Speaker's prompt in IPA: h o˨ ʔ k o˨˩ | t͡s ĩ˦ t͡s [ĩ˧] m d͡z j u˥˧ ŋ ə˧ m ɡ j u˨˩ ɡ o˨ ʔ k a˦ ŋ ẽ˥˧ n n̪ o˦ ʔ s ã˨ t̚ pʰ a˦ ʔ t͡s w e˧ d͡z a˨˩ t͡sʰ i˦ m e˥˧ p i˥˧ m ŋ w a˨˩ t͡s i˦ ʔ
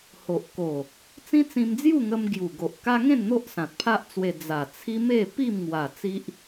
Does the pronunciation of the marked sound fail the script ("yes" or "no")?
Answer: no